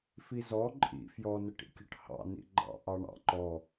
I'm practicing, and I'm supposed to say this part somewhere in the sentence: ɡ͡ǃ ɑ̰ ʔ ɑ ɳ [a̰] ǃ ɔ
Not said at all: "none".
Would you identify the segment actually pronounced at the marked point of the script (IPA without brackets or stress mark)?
ɑ̰